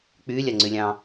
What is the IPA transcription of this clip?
k͡pylʲaŋ͡ǀylʲɑ̃

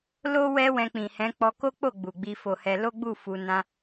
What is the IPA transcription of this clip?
lo˦ wɛ˦wɛ̃˧ k͡pĩ˨hɛ̃˨˦ k͡pɔ˧ko˦k͡po˦˨ ɡ͡bu˨ɡ͡bi˧fo˧hɛ˧ lo˦ɡ͡bu˦˨ fu˧ nã˦

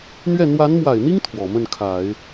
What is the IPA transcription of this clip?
n̪ɥɛ˥˩ n̪wa˧˥nmwa˨˩ɪ̯n̪i˥ŋ t̪ʰwɔ˨˩ mə˥˩nkʰa˨˩˦ɪ̯

